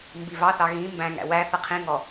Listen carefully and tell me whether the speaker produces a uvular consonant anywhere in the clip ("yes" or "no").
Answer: yes